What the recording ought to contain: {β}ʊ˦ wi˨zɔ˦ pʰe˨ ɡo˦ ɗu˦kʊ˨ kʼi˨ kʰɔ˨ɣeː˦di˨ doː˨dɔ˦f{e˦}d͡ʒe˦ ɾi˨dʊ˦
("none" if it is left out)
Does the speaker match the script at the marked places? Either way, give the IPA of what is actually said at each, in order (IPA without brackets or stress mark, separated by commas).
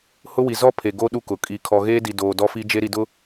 h, i˦